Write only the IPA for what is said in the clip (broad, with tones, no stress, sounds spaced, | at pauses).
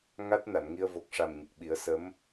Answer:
ŋ a˦˥ t̚ n a˨˩˨ n ŋ i˧ ə̯ v o˨˩ k̚ ʂ a˨˩ m ɲ ə˨˩ k̚ ɓ i˨˩˦ ə̯ s ə˧˥ m